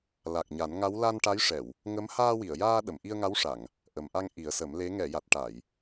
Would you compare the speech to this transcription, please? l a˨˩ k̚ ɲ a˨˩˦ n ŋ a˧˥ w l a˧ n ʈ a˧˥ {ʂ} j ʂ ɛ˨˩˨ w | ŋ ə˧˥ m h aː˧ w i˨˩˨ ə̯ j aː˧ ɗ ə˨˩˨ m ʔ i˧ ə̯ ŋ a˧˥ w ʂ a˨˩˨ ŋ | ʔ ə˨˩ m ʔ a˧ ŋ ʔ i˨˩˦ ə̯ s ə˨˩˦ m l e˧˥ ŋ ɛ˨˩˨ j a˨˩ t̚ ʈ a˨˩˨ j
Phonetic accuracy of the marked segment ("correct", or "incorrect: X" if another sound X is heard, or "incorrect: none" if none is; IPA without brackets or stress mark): incorrect: none